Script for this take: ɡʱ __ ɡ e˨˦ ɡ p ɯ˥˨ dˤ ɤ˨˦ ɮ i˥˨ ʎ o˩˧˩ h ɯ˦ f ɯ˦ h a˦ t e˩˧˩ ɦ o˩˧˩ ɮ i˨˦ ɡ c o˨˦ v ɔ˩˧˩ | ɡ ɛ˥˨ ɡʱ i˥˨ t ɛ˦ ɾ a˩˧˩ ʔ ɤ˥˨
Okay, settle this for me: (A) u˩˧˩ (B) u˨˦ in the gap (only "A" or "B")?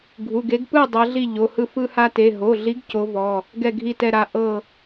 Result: A